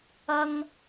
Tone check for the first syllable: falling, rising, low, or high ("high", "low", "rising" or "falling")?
high